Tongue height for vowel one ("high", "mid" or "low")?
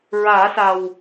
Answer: low